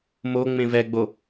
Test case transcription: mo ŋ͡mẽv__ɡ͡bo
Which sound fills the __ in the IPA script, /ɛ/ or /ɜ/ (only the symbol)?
ɛ